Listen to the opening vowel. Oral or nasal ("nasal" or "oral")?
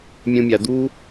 nasal